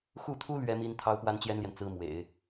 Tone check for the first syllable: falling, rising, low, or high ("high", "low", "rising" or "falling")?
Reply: falling